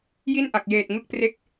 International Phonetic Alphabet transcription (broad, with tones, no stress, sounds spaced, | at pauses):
j i˥˩ n ʔ a˨˩ k̚ j eː˨˩ t̚ ŋ ɯ˥˩ k̚ p r e˥˩ k̚